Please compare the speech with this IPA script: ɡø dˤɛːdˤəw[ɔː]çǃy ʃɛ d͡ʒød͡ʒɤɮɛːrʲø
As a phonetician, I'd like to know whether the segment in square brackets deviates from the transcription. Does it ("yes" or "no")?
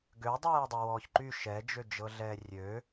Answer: no